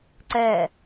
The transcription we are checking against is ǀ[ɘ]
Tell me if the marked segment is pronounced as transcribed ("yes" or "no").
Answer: no